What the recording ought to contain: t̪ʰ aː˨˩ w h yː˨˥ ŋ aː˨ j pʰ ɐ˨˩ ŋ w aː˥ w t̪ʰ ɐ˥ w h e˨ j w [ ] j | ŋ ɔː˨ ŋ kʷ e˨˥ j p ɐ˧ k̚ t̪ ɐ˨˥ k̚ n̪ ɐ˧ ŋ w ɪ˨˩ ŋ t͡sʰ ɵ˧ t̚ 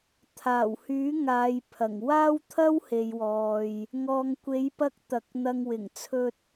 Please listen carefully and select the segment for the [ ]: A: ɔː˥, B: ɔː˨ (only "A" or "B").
B